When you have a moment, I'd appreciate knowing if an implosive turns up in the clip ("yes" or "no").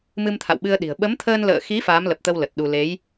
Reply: yes